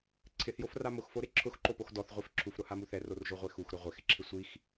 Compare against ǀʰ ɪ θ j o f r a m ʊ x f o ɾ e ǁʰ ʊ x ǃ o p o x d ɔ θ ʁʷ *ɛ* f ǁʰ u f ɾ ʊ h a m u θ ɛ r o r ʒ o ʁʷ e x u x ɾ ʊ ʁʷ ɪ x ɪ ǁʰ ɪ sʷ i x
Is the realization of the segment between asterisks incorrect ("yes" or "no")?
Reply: yes